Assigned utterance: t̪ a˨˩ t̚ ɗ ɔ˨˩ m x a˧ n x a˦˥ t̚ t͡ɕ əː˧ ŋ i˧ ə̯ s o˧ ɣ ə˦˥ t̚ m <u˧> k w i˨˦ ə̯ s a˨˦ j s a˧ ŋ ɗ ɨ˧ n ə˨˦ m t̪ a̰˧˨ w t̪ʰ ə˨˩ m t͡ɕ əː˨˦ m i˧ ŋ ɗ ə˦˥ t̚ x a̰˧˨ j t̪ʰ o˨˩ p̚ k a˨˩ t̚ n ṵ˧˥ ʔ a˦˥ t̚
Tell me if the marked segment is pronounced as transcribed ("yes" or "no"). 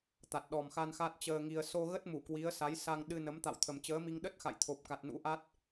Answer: no